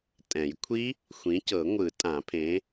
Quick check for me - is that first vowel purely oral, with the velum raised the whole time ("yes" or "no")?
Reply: no